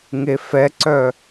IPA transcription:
ŋefɛǀœ

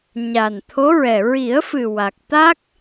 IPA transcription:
ɲa˨˩nt̪ʰo˧˥ɹɛ˨˩ ɹi˨˩˦ə̯fɨ˨˩ wa˨˩k̚t̪a˦˥k̚

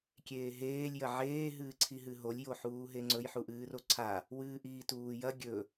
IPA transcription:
kʲeːɦeːlʲ jɐʕeː ɦɨːǀʰiɦɨɦolʲ joħuːɦeŋ͡ǀɵj ħuʔɨːroǀʰa | wɨːʔiːtuːjɐ ɡʲɵ

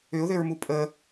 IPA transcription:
ʏʊ̯ðʏɹmu pʼə

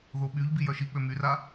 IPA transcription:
ðoɓyʎbi jœʃik͡pø myra

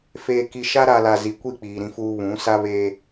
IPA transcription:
feː˨ki˨ ʃa˦ɾa˨ la˨zi˨kʷi˦˨ k͡piː˨ɾĩ˦fuː˦ βũ˨˦ sa˦βeː˦

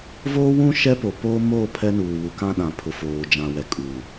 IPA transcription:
voː˦wũ˦ ʃɛ˦po˨poː˦ moː˦˨ pʰɛ˦nuː˨ wu˨kã˦ɗã˨ pʰʊ˨foː˨ d͡ʒã˨wɛ˨ kʼu˨

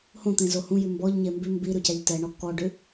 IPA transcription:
hõt̪ẽ zohũjʉ mbɔʎɲe mbʉ mbi ɾʉcæʎtɛɳɔ kɔɖʉ

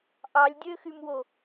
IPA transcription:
ʔɑlʲdʲøxymwo

